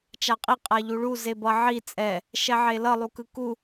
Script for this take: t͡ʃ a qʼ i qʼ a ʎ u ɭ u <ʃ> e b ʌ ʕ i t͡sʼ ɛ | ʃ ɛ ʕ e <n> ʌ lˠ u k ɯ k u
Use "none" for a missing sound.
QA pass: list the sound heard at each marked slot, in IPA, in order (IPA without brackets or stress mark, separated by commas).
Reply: z, l